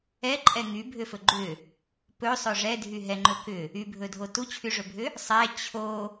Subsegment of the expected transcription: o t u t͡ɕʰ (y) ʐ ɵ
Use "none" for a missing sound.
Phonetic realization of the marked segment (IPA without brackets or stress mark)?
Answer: y